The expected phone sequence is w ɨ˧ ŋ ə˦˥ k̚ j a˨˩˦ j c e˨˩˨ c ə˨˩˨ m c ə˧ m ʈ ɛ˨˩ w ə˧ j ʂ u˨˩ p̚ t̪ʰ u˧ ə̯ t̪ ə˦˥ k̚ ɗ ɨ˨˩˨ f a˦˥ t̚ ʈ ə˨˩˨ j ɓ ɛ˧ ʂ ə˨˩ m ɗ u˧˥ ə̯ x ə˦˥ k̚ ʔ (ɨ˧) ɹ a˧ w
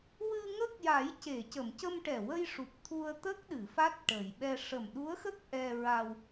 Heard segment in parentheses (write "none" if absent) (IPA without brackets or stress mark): ɛ˧